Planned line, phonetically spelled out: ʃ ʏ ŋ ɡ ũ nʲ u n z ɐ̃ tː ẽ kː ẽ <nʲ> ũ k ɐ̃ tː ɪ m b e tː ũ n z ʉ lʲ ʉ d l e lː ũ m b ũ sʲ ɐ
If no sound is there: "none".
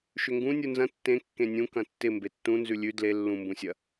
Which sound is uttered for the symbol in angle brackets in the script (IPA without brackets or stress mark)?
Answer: nʲ